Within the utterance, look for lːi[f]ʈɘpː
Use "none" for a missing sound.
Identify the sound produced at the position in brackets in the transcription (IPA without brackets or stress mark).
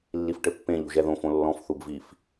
f